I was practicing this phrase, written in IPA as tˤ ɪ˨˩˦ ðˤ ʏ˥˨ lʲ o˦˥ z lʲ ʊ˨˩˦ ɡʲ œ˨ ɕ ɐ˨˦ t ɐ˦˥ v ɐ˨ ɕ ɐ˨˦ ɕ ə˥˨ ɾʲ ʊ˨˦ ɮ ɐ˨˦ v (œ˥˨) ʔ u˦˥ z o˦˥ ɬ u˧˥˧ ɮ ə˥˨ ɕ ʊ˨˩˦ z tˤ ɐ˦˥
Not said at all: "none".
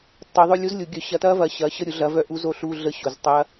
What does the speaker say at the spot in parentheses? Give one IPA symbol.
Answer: œ˥˨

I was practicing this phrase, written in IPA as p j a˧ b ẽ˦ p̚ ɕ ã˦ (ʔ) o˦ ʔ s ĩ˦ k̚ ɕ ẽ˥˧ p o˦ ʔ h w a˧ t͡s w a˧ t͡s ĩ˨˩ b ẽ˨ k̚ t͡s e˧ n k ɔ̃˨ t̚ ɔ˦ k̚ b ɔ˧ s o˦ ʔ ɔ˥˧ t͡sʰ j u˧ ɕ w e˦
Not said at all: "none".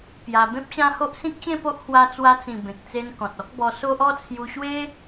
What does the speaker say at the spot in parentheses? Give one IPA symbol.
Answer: h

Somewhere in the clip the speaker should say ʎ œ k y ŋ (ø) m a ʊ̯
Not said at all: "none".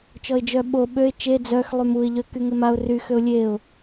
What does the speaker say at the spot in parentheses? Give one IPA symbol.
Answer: e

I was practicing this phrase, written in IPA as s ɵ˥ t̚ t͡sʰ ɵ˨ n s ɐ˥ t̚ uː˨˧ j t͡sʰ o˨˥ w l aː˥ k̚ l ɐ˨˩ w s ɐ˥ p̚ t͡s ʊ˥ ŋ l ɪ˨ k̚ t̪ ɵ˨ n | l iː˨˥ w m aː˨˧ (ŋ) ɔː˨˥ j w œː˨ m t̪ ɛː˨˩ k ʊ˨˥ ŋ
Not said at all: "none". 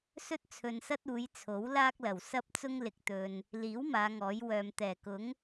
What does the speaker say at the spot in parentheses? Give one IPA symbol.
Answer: ŋ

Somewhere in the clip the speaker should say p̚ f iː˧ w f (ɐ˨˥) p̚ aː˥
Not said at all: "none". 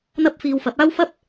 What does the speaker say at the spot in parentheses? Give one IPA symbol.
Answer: ɐ˨˥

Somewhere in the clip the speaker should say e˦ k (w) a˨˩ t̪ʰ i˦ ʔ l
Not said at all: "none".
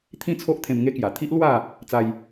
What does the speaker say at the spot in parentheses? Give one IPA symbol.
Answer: j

